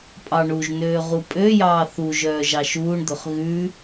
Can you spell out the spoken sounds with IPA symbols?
pʼ ɑ ɳ u ʒ n øː ʁ u pʼ ø j ɑː θ u ʒ œː ʒ ɑ ʃ uː ɳ d̪ ɵ χ ɣ ʉ

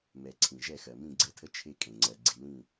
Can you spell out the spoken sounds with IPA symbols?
m ɛ˨ ǀʰ ĩ˨ ʒ ɛ˦˨ x ɜ˨ m ĩ˦˨ ɡ͡ǀ ɛ˦˨ tʰ ə˦ t͡ʃʰ e˦ kʼ ẽ˨ ŋ͡ǀ ɜ˨ ɡ͡ǀ i˨ l ĩ˦˨

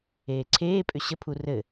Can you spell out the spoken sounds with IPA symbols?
eː ǀʰ eː pʼ ʏ ɕ ə pʰ u r ɘ

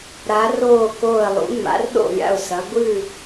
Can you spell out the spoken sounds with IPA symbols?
ɾ a˨˦ r oː˦˨ k oː˦˨ ə̯ lˠ ṵ˨˦ ŋ͡m a̰˨˦ r ɗ o̰˦˨ lʲ a̰˦˨ ʊ̯ s ɐ˨˦ ɡʷ ɨ˦˨

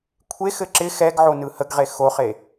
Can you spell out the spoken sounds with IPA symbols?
kʷʰ e x ɘ ǁ ɪ x ɛ ɡ ʕ o n ɯ h ə ɡ ʁ e x o χ e

